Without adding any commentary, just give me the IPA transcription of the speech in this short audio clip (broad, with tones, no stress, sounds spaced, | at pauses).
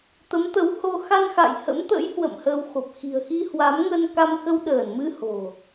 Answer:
t̪ ə˨˦ m t̪ ə˨˦ w h o˧ x a˧ n x a̰˧˨ j h ə̰˧˥ m t̪ ə̰˧˥ j h w ə̰˧˨ m h əː˧ w x o˨˩ p̚ x i̤˨˩ ə̯ x i˧ h w a˨˦ m ŋ ə˧ n k a˧ m x ə˧ w ɗ əː˧˩ n m ɨ˧ h o̤˨˩